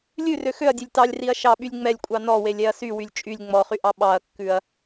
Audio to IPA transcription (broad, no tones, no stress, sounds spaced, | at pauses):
lʲ ʉ r ø x ø ɐ̯ dʲ ø lʲ t ɑ lʲ r i ɐ̯ ʃ ɑ ɓ y lʲ ŋ͡m ɛ lʲ kʷʼ ɑ n ɔ w e lʲ ɛ ɐ̯ s y w y lʲ t͡ʃʼ y lʲ ŋ͡m ɔ χ y ʔ ɑ ɓ ɑ ɐ̯ kː ʉ ɐ̯